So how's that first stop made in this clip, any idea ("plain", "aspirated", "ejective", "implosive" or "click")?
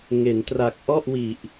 plain